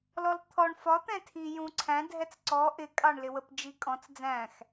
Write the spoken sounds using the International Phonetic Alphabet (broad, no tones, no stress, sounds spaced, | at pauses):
l ɔ l t̪ʰ ɔ ɳ f ɒ t̪ ɛ̃ tʰ i j ũ ǀʰ æ̃ dʱ ɛ t͡s ǀ ɔ ʔ ɪ kʼ ɑ ɳ l ɪ w ə p d͡ʒ i kʼ ɔ̃ t͡s d͡z æ̃ x